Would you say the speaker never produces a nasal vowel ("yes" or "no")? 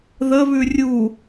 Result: yes